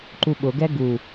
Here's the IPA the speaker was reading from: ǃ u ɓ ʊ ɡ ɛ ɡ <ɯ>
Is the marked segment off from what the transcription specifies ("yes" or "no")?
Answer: yes